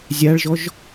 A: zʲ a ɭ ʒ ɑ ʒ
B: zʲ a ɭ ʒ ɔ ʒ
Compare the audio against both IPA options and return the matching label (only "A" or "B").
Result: B